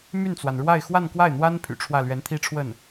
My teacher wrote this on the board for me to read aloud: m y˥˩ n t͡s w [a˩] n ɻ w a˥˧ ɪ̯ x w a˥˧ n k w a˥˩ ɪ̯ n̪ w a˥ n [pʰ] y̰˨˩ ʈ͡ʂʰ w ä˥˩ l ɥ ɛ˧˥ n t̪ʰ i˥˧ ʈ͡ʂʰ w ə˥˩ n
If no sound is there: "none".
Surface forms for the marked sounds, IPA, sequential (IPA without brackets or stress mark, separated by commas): a˩, pʰ